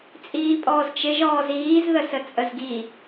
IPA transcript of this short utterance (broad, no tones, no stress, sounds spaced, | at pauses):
t͡sʼ iː pʼ ɔː z t͡ʃ ɪ ʒ ɔː z iː z ð ə s ə t͡sʼ ə z ɡ i